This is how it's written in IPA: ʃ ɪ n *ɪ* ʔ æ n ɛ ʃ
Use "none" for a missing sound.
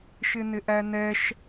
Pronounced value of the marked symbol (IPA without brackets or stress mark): ɪ